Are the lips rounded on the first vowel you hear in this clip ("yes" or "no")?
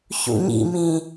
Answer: yes